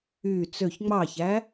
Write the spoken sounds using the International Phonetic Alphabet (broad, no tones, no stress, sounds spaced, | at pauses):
y t͡s ø ç ŋ͡m ɑ ç æ